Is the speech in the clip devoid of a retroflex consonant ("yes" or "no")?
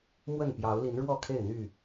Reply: no